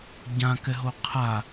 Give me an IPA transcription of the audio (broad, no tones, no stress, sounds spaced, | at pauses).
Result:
ɟ ã k ɛ ɦ o qʰ a